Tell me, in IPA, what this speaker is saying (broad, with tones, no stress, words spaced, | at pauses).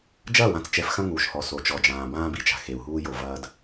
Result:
d͡ʒɐː˦˨wã˨t͡st͡ʃɛ˨f xɐ̃˦ŋuː˨ʃhɔ˨ so˨t͡ʃɔ˨d͡ʒãː˨ bãː˦bi˨t͡ʃa̤˨ xe˨u̯ɦuː˦jo˨ vɐː˨d